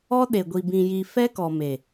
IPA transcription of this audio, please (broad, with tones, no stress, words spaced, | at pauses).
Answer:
ɔ˦ɗe˨ɡʷi˨ bĩ˨ji˨ fɛ˦kɔ˨me˨